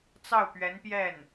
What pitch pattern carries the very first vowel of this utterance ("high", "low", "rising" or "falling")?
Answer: falling